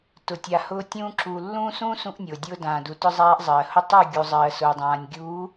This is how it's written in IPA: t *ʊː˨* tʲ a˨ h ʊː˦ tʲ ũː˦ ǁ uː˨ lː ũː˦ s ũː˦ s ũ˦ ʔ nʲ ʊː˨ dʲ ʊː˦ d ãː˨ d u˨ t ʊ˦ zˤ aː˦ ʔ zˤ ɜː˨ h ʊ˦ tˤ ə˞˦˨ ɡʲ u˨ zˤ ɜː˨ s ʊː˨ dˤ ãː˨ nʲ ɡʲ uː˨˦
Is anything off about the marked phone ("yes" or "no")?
yes